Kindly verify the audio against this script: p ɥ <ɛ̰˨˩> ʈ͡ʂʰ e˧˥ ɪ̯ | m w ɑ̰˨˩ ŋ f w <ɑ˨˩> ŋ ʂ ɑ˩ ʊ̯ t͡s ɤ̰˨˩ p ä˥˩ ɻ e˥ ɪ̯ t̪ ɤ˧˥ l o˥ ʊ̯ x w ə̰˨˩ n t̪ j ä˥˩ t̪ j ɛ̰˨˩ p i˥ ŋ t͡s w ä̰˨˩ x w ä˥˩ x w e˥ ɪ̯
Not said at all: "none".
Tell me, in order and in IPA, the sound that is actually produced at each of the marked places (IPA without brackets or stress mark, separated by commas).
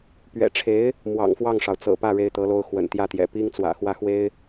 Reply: ɛ̰˨˩, ɑ˥˩